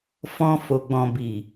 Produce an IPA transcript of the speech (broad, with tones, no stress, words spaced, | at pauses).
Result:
fɔ̃˧ fo˨ɡ͡bɔ̃˨ bi˨